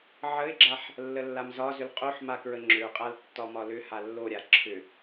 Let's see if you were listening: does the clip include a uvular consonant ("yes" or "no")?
yes